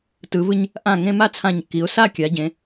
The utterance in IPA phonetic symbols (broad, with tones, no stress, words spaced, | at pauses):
tɯ˩˧vɯ˧ɲ | ʔã˧˩ŋẽ˧ ma˥˧t͡sʰã˧˩ɲkːi˩˧ʊ̯ sa˥˧kʲa˩˧ ɟẽ˩˧